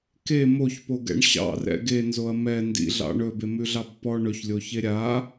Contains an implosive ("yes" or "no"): no